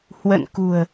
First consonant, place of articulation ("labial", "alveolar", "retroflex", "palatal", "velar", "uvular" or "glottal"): glottal